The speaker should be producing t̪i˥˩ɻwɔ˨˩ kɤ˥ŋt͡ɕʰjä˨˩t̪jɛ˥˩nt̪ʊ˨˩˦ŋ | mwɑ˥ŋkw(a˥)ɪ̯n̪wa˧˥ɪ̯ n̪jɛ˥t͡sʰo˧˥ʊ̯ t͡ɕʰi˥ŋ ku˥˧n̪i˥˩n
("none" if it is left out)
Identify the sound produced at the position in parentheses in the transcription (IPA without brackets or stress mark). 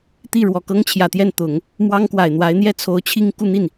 a˨˩